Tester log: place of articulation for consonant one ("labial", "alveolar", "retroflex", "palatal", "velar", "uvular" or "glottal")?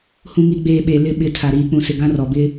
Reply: glottal